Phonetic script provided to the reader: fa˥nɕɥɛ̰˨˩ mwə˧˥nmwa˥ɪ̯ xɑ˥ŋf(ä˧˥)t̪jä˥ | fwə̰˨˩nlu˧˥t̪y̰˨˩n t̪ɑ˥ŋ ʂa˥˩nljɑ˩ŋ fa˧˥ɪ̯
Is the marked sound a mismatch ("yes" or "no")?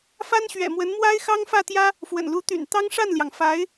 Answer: yes